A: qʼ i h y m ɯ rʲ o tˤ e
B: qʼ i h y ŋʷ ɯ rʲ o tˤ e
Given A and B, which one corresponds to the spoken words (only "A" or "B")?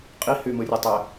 A